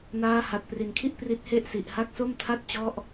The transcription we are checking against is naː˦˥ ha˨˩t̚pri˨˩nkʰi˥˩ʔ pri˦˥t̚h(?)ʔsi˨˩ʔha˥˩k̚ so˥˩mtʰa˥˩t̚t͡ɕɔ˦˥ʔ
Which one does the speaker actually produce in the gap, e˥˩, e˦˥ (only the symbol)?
e˥˩